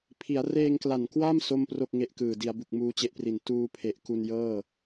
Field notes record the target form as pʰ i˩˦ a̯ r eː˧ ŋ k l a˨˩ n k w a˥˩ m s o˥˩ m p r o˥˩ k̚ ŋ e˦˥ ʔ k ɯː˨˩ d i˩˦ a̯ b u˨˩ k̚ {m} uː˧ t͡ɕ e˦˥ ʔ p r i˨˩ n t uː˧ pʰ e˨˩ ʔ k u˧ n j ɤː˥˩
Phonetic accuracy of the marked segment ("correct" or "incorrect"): correct